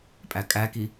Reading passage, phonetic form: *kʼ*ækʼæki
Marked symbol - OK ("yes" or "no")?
no